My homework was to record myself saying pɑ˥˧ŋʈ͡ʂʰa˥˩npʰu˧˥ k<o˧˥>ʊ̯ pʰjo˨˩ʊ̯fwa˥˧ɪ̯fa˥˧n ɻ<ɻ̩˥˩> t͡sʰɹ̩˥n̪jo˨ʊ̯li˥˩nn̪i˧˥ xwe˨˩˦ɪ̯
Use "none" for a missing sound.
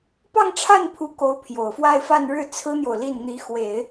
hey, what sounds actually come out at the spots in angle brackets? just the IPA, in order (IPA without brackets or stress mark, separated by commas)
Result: o˧˥, ɻ̩˥˩